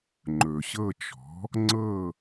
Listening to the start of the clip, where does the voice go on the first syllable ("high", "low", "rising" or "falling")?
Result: low